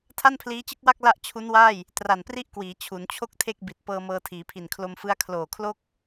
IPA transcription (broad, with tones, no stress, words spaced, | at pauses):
tʰa˥˩npʰliː˦˥t͡ɕɯ˥˩k̚wa˥˩k̚ la˥˩ʔ t͡ɕʰu˦˥nwaː˥˩j | tra˨˩npri˥˩ʔkwiː˩˦ t͡ɕʰu˩˦nt͡ɕʰo˥˩k̚tʰe˥˩k̚ bi˨˩t̚ pɤː˧mɤː˧tʰiː˩˦pʰi˨˩n kʰlo˧mfɯ˦˥a̯ kʰloː˨˩kʰlo˥˩k̚